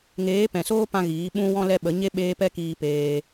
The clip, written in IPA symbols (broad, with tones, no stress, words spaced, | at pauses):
ŋeː˨˦pɛ̃˨soː˦pã˧ ɣiː˨˦ɓũ˦wɔ̃˦lɛ˦ ɓə˨˦ɲe˦ ɓeː˧ pɛ˦kiː˧peː˧